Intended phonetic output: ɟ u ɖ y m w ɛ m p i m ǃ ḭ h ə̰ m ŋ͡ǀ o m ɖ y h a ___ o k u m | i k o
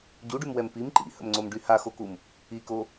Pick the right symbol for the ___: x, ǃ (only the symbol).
x